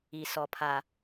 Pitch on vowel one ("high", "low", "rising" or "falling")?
low